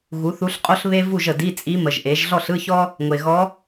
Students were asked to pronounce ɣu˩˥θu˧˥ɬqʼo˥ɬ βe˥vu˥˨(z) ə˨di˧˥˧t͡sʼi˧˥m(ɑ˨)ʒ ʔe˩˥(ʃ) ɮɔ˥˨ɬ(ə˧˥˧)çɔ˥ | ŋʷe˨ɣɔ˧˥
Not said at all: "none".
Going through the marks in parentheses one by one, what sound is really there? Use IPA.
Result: ʒ, ə˨, ʒ, ɯ˧˥˧

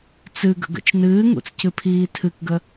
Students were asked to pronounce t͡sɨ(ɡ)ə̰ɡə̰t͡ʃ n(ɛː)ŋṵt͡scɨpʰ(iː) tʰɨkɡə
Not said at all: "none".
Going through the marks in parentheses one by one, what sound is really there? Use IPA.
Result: ɡ, ɨː, iː

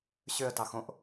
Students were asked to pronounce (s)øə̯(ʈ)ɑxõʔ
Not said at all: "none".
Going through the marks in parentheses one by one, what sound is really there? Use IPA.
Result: ɕ, t

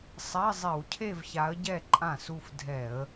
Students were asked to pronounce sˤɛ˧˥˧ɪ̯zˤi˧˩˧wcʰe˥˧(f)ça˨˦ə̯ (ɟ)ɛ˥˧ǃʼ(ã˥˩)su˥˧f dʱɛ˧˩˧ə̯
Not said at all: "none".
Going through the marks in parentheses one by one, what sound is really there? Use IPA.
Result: v, ɟ, ã˥˩

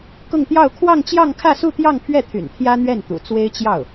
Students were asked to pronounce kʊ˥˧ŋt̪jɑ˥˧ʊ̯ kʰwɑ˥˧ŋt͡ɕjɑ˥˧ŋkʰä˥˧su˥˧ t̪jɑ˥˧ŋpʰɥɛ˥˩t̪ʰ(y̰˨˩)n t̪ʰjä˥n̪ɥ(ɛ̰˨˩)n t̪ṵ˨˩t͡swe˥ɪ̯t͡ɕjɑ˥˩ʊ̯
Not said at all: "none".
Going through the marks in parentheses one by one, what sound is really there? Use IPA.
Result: y̰˨˩, ɛ˥˩

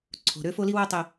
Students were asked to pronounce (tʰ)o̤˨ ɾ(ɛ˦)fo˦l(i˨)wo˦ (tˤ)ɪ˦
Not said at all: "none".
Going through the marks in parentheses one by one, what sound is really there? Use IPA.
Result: ǀʰ, ø˦, i˦, tˤ

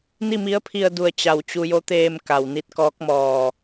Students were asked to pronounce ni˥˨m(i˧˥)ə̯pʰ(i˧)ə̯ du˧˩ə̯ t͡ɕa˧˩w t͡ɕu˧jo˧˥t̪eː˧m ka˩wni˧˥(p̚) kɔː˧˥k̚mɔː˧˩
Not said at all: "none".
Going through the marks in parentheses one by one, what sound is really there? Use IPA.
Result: i˧˥, i˧, t̚

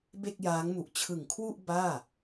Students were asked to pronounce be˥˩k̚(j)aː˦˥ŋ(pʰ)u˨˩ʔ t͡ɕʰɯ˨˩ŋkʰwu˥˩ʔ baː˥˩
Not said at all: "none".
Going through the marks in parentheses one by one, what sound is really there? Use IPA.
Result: j, m

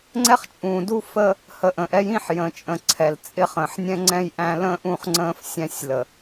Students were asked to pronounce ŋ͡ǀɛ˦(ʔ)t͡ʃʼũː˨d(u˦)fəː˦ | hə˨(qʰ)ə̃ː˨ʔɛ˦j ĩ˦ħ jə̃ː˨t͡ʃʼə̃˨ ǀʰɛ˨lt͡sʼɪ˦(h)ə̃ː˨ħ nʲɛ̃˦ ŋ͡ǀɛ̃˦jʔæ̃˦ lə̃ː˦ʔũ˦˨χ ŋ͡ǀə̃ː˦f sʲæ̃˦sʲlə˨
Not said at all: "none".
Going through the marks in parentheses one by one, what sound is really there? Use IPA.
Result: χ, u˦, ʔ, χ

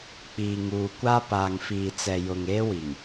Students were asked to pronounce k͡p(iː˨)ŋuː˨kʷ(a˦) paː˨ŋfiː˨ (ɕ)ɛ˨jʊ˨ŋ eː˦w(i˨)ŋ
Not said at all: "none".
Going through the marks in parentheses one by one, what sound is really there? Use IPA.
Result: iː˨, a˦, t͡s, i˨

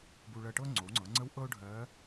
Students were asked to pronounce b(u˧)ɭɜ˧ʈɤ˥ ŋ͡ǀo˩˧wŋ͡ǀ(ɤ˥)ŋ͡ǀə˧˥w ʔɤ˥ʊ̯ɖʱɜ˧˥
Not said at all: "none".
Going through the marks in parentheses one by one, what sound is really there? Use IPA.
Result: u˧, ɤ˩˧

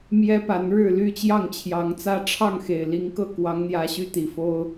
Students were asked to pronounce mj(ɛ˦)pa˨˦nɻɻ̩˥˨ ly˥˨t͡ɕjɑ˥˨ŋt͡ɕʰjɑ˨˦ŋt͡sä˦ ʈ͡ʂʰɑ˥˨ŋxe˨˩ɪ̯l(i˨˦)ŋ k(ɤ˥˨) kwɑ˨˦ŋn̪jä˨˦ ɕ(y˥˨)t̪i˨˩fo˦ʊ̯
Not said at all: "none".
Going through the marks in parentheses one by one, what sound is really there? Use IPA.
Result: ɛ˦, i˨˦, ɤ˥˨, y˦

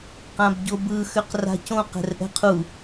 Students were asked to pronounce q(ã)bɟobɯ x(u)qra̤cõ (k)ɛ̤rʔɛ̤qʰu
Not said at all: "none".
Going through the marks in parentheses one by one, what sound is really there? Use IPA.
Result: ã, ø, q

